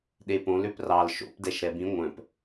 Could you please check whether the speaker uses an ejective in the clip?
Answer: no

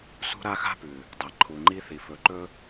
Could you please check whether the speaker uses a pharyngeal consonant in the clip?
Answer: no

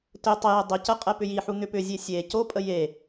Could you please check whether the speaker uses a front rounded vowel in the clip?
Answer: yes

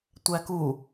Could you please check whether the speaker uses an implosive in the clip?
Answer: no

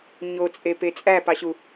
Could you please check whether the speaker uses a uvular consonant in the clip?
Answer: no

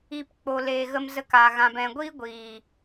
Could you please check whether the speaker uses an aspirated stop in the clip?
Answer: no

